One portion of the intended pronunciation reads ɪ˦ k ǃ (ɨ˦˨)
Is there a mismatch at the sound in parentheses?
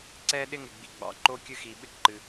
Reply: yes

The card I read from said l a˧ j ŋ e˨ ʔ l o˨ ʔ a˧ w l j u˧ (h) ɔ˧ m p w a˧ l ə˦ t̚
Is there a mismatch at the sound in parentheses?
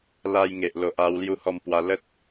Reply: no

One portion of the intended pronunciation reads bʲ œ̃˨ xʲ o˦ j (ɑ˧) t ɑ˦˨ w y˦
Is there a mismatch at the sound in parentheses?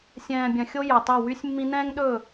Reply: yes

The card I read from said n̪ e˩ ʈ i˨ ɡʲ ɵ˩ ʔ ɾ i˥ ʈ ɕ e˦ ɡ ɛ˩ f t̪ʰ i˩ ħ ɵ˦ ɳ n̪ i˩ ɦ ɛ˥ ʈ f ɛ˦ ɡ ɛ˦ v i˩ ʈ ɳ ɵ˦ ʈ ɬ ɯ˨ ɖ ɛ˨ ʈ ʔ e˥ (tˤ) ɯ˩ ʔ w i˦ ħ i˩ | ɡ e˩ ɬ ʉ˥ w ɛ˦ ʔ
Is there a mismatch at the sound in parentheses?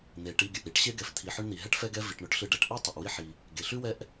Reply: no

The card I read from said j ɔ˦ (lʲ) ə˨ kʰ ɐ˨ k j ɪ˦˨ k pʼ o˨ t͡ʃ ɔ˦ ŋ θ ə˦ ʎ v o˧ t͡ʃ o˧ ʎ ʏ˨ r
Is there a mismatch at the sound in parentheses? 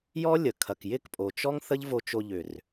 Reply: no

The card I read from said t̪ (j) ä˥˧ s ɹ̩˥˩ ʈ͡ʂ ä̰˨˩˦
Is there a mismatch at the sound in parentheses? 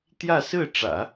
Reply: no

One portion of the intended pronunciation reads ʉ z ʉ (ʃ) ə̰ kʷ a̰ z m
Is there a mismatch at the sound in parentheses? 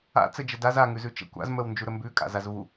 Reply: yes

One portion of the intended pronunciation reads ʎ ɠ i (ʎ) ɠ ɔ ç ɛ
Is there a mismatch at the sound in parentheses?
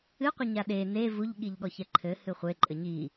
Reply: no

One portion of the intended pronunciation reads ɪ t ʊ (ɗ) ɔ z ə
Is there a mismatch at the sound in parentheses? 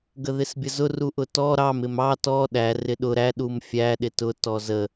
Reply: yes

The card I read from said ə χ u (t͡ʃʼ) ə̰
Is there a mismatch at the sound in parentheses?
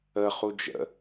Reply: yes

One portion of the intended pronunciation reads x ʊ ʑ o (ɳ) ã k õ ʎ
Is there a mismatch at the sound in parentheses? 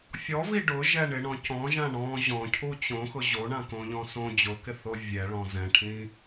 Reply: no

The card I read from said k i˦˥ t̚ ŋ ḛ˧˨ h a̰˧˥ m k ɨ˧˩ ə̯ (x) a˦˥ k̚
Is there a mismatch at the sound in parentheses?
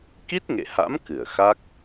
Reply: no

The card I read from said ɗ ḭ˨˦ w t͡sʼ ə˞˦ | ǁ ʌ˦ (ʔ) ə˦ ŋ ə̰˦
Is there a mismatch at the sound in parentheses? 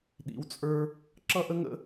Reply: no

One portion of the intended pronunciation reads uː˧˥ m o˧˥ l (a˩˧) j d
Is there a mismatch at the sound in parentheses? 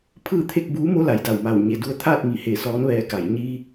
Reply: no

